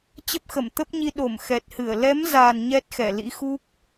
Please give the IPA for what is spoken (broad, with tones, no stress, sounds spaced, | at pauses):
t͡ɕ ə˦˥ p̚ x ə˧˩ m t̪ ə˦˥ p̚ ɲ i˧ ɗ o˧˩ m x ɛ˨˩ t̚ h ɨ˧˩ ə̯ l ɛ˨˦ m z a˨˩ n ɲ ɛ˦˥ t̚ x ɛ˧˩ l ḭ˧˥ x u˦˥ k̚